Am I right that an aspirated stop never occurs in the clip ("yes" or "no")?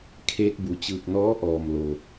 no